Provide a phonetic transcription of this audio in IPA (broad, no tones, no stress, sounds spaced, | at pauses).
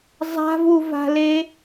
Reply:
zˤ a̤ v u v a̤ l e